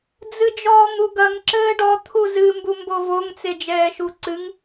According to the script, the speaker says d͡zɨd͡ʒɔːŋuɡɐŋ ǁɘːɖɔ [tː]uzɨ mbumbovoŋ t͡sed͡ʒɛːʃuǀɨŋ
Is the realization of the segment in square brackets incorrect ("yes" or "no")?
yes